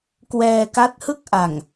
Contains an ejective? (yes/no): no